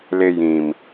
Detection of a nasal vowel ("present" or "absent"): present